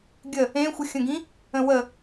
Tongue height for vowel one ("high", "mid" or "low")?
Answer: mid